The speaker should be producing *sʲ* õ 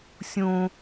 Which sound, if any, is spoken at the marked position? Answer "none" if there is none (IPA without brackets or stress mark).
sʲ